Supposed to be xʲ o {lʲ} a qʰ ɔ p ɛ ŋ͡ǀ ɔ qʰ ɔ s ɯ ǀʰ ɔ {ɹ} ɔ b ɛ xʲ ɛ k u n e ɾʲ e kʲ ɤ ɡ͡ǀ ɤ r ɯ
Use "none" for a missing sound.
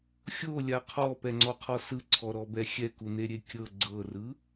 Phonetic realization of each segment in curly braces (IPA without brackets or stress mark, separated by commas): lʲ, ɾ